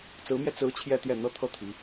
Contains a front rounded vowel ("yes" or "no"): no